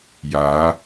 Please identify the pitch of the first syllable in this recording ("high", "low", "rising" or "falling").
rising